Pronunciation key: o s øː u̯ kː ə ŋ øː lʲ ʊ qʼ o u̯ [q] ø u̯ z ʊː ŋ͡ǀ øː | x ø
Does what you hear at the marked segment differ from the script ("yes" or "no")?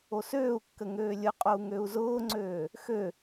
yes